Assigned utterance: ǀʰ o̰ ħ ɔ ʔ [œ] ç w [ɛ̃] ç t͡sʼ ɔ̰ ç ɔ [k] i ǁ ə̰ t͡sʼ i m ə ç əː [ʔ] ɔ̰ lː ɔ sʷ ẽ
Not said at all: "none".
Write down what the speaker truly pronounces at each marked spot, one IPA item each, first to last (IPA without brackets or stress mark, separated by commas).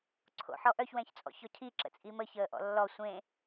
œ, ɛ̃, cʰ, ʔ